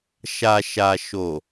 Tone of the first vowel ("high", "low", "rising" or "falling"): low